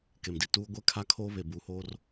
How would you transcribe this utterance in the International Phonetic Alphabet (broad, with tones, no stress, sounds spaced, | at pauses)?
k e˨ m d i˨ t uː˦ ɡʷ ɛ˦ kʰ a˦ kʰ oː˦ β e˨ b uː˨ h oː˦ r